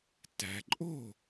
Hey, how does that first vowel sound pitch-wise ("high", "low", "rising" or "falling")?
low